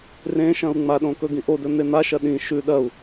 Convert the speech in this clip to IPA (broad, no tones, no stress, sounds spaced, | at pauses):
r ẽ ʃ ɐ̃ u̯ ŋ͡m a ɗ õ k ɵ ɡ ĩ ʔ o d ɵ n̪ e n̪ a ʃ ɐ ɗ ĩ ʃ ʉ ɗ ɐ u̯